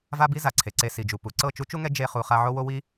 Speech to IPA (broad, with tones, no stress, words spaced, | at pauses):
va˦bi˦za˨ ǀʰe˨ǀe˧ si˨d͡ʒu˨pu˨ ǀɤ˦˨t͡ʃu˦t͡ʃu˦ŋɛ˦ d͡ʒe˧χu˨ χa˧ʕo˦wo˦ wi˦